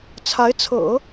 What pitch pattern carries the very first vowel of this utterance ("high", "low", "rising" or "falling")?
rising